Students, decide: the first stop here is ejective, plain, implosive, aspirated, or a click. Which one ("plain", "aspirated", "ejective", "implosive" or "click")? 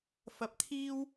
plain